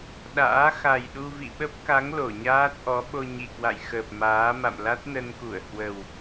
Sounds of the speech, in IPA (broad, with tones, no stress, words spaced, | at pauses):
ɗa̰ː˧˥ xa˨˩jɗu˧ vḭ˧˨ɓə˦˥p̚ka˨˦ŋ lo˧˩ɲaː˦˥t̚ʔɔ˨˦ ɓo˧ɲi˨˩kwa̰˧˨jxəː˨˩p̚ maː˨˦ ma̰˧˨mla˦˥t̚nə˧nku˧˩ə̯ hwə˨˩w